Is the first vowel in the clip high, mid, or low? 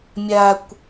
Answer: low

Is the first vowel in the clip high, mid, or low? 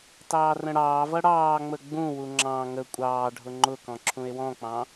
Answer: low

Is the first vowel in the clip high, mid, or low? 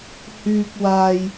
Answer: high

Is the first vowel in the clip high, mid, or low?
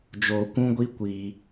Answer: mid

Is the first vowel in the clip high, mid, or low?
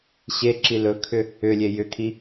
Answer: mid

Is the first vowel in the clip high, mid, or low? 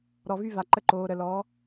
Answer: mid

